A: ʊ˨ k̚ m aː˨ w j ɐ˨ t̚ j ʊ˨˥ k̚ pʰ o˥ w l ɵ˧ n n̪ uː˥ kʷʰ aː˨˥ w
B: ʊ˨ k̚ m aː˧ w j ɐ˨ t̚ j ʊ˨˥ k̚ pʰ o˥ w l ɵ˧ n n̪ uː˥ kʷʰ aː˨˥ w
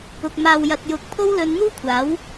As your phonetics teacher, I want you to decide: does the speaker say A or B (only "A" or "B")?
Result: A